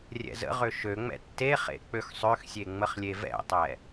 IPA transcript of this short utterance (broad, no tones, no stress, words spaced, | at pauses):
rʲɛ̰zə̰ʁø ʃøŋ͡mɛ̰ tːeχḛ k͡pøxsˤøxsʲe ŋ͡məχlʲevɛ̰tˤɛ